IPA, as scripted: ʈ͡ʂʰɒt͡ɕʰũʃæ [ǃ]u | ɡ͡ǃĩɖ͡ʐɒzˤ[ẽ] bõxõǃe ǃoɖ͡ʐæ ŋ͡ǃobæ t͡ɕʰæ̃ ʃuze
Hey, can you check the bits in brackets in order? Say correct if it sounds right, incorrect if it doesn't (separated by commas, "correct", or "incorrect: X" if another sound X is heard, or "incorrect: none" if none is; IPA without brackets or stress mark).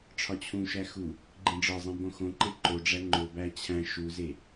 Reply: incorrect: x, incorrect: ĩ